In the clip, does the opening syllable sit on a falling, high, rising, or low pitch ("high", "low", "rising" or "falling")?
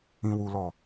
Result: high